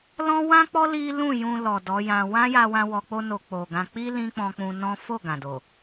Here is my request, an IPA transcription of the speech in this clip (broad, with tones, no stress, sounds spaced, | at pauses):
l ɔ̃˦ w ã˦ k͡p ɔ˦ l i˦ l ũ˦˨ j ũ˧ l ɔ˨ d ɔ˨˦ j ã˧ w ã˦ j a˧ w ã˧ w ɔ˧ k͡p o˦ n o˧ k͡p o˨ ɡ ã˧ k͡p i˦ l ĩ˦ k͡p ɔ̃˧ k͡p ũ˧ n ɔ̃˦ f o˦˨ ɡ ã˨ d o˨